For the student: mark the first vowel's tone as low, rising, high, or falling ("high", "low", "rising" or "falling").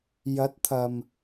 rising